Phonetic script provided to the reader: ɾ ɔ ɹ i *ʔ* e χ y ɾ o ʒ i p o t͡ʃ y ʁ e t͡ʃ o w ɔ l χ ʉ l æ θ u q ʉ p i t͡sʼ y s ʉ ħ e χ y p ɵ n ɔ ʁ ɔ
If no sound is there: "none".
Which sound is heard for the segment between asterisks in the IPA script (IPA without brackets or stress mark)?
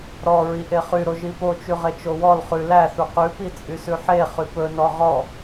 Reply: ʔ